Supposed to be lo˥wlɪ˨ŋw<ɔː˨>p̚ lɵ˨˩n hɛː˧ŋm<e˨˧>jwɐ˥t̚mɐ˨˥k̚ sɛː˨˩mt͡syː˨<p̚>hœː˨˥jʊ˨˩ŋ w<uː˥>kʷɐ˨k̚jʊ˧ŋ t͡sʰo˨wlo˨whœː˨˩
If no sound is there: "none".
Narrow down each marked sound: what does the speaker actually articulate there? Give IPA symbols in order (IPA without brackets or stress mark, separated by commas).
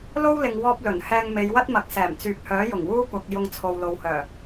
ɔː˧, e˨˧, p̚, uː˥